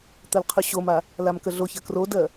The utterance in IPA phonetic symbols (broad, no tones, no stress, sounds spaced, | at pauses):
t̪ ɜ l qʰ ʉ ɕ o m a | l a m k ə ɮ o ç ɜ k r o d ɜ